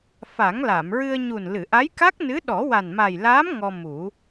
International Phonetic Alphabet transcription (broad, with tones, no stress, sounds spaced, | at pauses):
f a˨˩˦ ŋ l a˨˩˨ m ɹ ɨ˧ ə̯ ɲ u˨˩ n l ɨ˨˩˨ ʔ a˧˥ j k a˦˥ k̚ n ɨ˧˥ ɗ ɔ˨˩˦ w a˨˩ n m a˨˩ j l aː˧˥ m ŋ ɔ˧ m u˨˩˦